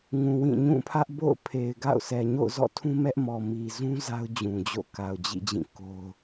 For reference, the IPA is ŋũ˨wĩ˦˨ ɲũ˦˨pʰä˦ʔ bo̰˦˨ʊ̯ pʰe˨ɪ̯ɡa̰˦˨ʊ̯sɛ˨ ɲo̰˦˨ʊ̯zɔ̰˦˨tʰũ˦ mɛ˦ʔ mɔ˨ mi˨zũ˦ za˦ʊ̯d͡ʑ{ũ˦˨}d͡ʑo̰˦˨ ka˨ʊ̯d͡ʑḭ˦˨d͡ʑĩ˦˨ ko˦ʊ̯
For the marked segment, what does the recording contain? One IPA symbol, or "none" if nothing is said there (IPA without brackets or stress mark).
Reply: ũ˨